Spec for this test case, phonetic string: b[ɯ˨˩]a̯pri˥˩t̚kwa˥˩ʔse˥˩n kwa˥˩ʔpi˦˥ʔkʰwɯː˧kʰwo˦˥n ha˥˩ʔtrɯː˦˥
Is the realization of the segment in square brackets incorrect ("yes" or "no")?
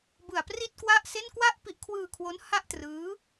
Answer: no